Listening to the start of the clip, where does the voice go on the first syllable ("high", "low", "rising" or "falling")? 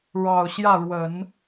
low